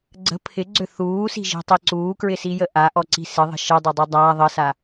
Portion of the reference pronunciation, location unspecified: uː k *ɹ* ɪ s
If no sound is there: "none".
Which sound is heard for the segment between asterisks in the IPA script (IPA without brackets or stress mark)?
ɹ